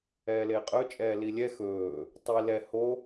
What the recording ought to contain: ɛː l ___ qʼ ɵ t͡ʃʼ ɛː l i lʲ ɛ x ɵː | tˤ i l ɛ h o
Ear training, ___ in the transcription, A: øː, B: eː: B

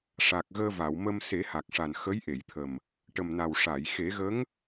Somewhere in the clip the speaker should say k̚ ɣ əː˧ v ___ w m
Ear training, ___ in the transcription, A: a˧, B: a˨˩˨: B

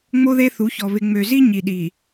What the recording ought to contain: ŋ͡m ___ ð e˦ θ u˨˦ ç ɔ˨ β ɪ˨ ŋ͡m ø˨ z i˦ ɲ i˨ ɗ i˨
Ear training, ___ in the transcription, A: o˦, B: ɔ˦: A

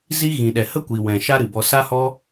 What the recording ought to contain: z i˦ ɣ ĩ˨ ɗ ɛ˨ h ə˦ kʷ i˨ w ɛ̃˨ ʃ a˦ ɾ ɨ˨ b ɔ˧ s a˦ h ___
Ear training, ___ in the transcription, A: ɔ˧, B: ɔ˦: B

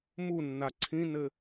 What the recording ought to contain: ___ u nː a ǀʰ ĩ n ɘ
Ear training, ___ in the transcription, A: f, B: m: B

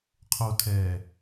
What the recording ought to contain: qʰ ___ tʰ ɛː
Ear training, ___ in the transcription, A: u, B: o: B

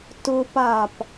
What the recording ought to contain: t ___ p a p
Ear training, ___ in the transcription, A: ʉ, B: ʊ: B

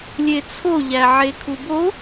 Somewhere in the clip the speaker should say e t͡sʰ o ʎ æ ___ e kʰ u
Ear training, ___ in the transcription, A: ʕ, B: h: A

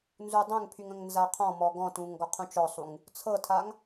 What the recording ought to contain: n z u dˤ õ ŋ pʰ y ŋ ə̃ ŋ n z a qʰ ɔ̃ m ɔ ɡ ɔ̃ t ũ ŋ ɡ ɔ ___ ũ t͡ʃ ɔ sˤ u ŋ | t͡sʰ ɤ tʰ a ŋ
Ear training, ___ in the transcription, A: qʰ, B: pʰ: A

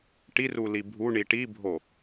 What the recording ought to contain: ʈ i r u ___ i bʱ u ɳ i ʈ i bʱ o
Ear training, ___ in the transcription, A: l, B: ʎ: A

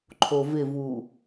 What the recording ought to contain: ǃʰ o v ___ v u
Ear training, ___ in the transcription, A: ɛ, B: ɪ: B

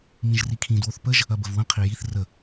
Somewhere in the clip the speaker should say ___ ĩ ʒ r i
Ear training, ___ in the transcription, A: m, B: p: A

